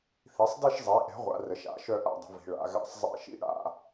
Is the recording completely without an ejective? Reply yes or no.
yes